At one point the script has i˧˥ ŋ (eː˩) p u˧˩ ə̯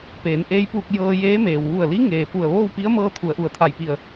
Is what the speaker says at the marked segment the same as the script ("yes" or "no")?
yes